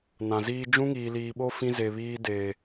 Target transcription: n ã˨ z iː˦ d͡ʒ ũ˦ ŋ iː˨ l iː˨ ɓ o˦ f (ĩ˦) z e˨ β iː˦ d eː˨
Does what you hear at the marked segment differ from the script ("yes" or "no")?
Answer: no